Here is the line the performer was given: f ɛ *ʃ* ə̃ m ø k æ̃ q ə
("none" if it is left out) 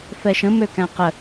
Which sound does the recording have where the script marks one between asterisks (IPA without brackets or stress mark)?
ʃ